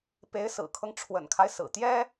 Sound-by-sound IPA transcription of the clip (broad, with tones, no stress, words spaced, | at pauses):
pe˧˥ɪ̯sɹ̩˨˩kʰɤ˦ŋ ʈ͡ʂʰwə̰˨˩nkʰa˦ɪ̯ sɹ̩˨˩ t̪jɛ˥